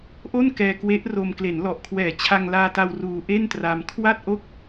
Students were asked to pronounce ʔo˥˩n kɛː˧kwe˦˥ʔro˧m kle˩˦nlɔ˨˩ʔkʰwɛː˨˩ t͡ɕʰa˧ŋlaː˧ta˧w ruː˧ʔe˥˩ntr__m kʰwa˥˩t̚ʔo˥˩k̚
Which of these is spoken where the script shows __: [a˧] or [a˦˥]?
a˧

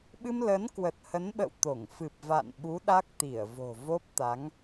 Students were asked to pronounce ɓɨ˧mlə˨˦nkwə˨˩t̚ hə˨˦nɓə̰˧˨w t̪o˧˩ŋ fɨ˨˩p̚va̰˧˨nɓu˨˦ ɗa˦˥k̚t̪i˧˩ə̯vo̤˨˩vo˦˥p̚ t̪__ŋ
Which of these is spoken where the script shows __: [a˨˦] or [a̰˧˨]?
a˨˦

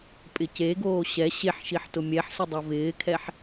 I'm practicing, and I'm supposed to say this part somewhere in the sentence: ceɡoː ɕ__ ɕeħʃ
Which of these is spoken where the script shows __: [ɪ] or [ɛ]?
ɛ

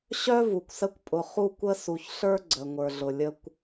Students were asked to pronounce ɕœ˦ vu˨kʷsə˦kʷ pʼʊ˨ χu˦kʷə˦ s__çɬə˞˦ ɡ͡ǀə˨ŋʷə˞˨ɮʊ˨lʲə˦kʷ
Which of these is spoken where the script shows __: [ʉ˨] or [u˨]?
u˨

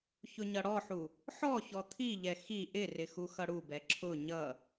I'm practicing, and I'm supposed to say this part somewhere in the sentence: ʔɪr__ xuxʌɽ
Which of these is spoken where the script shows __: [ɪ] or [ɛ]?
ɪ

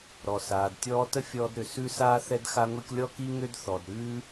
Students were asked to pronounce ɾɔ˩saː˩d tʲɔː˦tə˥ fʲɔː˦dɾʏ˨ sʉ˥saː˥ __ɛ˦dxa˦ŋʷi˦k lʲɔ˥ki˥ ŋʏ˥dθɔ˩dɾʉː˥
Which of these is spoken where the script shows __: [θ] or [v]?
θ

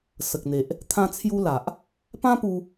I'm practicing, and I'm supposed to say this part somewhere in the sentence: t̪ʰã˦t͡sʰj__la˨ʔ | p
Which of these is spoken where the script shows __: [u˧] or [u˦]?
u˦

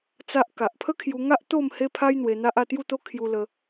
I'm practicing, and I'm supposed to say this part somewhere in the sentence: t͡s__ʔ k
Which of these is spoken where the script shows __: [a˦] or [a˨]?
a˦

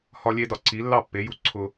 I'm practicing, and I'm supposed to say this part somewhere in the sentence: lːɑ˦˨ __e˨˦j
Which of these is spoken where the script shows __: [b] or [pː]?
pː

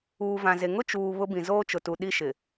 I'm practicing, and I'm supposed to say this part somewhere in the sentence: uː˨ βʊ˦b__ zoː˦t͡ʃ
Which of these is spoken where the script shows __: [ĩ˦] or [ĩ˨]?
ĩ˨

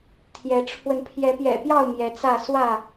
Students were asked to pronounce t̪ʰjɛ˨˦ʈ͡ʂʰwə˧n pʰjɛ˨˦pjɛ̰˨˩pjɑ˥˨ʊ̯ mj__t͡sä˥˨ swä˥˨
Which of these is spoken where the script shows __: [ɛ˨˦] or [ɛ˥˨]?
ɛ˨˦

